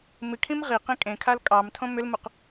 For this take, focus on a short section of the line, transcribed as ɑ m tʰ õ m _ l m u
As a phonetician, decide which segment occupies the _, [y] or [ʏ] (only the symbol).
ʏ